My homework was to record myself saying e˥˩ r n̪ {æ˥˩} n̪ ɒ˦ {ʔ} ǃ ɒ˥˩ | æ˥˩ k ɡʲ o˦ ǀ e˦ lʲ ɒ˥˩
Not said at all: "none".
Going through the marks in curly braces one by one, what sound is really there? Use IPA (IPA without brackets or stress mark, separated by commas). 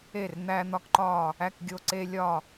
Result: æ˦, k